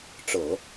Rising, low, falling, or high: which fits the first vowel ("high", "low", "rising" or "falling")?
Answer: low